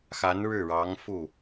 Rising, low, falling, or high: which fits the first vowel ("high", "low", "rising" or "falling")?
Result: rising